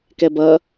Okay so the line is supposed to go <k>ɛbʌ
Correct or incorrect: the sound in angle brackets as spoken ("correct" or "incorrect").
correct